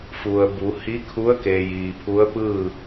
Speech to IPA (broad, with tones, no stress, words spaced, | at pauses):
fu˩ə̯bu˩˧ hi˧˥kʰu˧˥ə̯ke˩ jiː˩pʰu˧˥ə̯pɯː˥˨